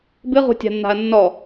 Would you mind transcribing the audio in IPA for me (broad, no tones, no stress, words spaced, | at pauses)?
bɨʁṳtʲa̤nːa̤ɐ̯ nːɔ